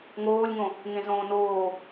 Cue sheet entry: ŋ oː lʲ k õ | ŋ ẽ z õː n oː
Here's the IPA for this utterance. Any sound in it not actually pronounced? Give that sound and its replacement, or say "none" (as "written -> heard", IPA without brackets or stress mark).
k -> ŋ